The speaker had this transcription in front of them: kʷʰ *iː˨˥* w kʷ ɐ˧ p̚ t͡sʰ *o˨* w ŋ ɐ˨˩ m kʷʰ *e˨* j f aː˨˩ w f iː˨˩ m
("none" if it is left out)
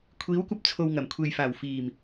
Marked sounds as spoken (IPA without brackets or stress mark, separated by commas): iː˨˥, o˨, e˨